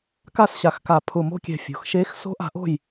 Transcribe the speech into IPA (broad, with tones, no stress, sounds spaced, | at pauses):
k a˦˨ s ɕ a˨˩ x k a˨˩ pʰ ʊ˨˩ m o̤˦˨ kʲ ɛ̤˨˩ fʲ o̤˩˧ x ʃ e˧˥ x s o̤˧˥ ʔ a̤˩˧ ʔ o̤˦˨ j